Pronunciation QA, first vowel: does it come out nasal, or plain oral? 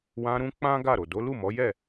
nasal